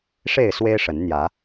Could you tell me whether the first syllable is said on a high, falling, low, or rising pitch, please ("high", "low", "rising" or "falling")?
falling